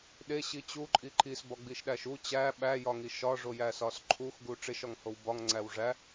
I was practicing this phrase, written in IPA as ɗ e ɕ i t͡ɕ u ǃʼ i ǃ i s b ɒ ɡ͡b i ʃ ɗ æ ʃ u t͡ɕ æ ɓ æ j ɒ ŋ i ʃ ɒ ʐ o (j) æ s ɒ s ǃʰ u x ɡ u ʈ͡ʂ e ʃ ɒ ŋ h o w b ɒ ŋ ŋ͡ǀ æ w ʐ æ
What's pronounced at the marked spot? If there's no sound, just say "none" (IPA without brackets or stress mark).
j